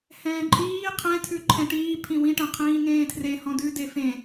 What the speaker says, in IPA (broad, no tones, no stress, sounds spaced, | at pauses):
h ɛ̃ː ǃʼ iː qʰ ɛ̃ tʰ ʉ ǃʰ ɛ̃ ʈ iː pʰ ĩ w ĩ ʈ ɛ̃ qʰ ĩː ŋ ẽː tʰ r e h ɔ̃ d ʉ d e f ẽ